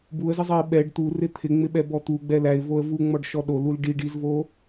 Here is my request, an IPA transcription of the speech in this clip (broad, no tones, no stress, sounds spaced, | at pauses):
b u ə̯ z ɪ zˤ ɛ ɪ̯ ɓ ɛ ɖ t̪ u r ɪ t̪ʰ ɪ ŋ͡m ɪ ɓ ɛ b ɔ t̪ u ɡ͡b ɛ l æ ɪ̯ v o ə̯ v u ŋ͡m ɔ ɖ ʃ ɔ ɗ o l u l ɖ i ɖ i z v o